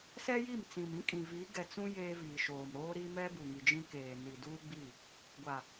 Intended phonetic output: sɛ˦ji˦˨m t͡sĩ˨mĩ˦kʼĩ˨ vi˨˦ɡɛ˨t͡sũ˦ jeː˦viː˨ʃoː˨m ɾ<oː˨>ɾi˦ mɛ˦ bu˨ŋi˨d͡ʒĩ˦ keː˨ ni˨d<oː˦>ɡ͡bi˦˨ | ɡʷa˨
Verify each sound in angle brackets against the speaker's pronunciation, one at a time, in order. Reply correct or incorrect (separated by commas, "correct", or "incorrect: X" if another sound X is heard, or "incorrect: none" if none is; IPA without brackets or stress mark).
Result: incorrect: oː˦, incorrect: uː˦